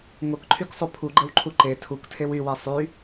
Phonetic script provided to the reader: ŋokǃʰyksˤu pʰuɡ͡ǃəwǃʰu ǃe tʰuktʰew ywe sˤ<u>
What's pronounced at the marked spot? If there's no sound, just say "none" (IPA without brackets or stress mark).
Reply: y